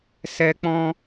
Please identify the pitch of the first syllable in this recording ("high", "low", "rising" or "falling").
high